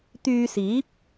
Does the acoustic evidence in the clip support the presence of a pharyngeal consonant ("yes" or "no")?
no